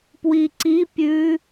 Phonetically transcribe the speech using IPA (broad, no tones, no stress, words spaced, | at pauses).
pwiǀipʲʉ